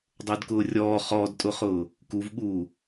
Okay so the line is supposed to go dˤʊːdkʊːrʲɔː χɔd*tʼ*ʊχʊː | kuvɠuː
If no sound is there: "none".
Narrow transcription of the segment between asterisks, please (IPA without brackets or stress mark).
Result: tʼ